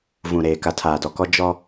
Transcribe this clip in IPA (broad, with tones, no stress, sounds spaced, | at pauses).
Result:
v ũ˨ ɾ eː˨ k a˨ tʰ aː˨ d ɔ˨ k ɔ˦ d͡ʒ ɔ˦